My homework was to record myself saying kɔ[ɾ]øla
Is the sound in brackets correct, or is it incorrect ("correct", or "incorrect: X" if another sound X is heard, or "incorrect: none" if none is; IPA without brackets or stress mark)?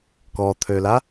incorrect: t̪ʰ